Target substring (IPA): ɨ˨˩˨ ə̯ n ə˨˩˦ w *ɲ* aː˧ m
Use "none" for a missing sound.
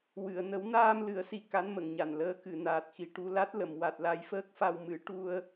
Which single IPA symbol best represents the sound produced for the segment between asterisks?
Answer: n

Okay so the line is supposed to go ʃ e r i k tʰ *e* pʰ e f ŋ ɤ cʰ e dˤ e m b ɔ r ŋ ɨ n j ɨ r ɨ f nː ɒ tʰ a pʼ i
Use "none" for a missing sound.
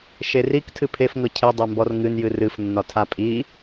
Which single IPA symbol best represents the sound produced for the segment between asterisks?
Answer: ɨ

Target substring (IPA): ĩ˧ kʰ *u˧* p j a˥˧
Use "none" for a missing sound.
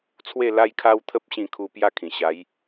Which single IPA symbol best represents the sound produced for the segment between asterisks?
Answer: u˧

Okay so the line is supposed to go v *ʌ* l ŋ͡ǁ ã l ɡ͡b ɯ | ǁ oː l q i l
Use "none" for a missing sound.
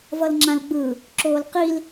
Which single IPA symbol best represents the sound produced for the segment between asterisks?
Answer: ʌ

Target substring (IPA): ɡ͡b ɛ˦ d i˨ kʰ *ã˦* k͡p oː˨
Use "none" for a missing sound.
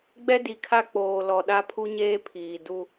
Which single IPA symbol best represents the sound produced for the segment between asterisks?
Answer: a˦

